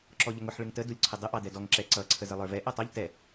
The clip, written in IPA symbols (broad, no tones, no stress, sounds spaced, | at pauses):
ǁ ɔ ʎ ə ŋ ʊ ħ ɭ ɪ ŋ t ə d u lʲ ǀʰ ə dˤ ə ʔ ɑ d ɛ d ɔ ŋ ǁ ɛ ǀ ʌ ǀʰ ə z ə lˠ ə˞ v ɛ ʔ ʌ tˤ ʌ ʎ t ɛ